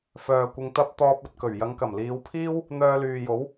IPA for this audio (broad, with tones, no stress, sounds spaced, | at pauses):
f œː˨ kʷ ɪ˧ ŋ t̪ ɐ˥ p̚ t̪ ɔː˧ p̚ ɵ˨ t̚ k ɵ˨˩ ɥ j ɐ˨˧ ŋ k ɐ˨˩ m l iː˨˧ w pʰ iː˥ w | n̪ œː˧ l yː˨ j o˨˥ w